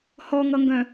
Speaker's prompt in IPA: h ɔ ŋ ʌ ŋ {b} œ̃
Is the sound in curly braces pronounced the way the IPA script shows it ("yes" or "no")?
no